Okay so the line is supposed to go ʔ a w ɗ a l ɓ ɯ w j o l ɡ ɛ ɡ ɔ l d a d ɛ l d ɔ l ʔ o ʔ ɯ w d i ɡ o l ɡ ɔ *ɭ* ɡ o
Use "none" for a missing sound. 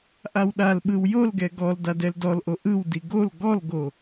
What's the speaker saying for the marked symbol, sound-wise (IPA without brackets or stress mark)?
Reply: l